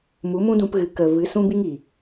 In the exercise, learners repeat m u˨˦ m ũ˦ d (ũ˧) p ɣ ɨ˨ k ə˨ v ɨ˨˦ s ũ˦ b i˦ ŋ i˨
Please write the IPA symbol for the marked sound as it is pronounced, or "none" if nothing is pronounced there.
ũ˧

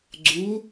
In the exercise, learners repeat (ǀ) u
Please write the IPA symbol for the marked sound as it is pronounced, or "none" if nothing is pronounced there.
ɡ͡ǀ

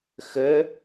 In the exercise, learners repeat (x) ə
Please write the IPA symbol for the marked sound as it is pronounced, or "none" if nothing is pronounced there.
x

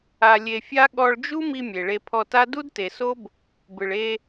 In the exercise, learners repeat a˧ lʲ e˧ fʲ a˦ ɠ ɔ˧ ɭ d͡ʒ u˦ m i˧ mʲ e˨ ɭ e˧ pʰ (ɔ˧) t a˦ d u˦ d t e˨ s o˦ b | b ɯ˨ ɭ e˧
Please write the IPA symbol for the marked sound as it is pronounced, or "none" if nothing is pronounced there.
ɔ˧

